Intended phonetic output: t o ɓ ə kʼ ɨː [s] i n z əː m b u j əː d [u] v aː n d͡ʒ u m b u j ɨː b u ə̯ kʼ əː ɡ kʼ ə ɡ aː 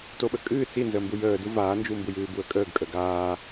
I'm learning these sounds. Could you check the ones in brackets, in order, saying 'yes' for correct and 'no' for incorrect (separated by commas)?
no, yes